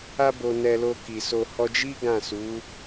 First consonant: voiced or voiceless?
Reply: voiced